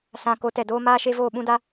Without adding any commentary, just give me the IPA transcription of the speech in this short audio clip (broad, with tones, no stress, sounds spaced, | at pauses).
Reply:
s ã˨ k o˨˦ t ɛ˨ d oː˦ m aː˦ ʃ e˦ v oː˦˨ ɓ ũ˦ d a˦